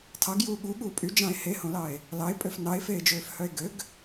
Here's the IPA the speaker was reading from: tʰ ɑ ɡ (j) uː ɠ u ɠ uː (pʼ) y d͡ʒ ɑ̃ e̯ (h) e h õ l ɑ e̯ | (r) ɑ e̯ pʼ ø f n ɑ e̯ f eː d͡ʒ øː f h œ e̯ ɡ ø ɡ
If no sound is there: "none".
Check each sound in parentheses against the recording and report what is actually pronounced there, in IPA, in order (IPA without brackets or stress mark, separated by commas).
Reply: j, pʼ, h, l